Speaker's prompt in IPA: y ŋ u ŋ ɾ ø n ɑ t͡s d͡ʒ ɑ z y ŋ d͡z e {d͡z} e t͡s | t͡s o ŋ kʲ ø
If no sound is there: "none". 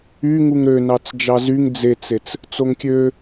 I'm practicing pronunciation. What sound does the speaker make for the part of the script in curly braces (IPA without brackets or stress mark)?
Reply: t͡s